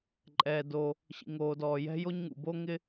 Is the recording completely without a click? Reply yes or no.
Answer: no